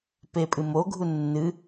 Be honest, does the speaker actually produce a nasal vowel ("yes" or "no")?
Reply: no